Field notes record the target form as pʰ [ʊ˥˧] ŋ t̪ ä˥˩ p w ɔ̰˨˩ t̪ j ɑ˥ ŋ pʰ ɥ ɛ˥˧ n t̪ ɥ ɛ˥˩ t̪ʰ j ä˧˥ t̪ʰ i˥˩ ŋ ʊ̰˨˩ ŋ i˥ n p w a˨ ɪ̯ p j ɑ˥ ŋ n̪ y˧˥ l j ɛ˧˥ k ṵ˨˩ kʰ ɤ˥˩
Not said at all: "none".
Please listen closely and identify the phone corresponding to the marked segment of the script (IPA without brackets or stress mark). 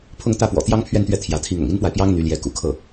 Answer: ʊ˥˧